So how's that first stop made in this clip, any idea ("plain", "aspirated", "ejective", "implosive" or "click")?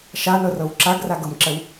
click